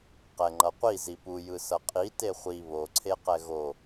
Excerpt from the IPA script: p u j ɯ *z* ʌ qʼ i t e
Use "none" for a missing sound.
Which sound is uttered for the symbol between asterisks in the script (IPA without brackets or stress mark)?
s